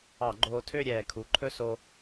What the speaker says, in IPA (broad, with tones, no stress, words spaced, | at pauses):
ɑ˧˩˧ɡ͡ǃoː˧tʰø˥˧ ɾʲɛː˨˩kʰu˩˧ǃʰɵ˥˧so˧